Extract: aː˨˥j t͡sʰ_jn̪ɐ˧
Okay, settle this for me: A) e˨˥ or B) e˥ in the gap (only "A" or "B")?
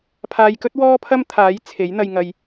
A